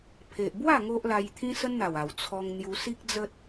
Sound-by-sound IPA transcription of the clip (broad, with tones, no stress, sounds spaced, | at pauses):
pʰ e˨ ʔ b w a˥˧ ŋ o˦ ʔ l a˧ j t̪ʰ ĩ˦ s ə˦ n n̪ a˨˩ w a˨˩ w t͡sʰ ɔ˧ ŋ n̪ j u˧ s i˦ k̚ d͡z ə˦ t̚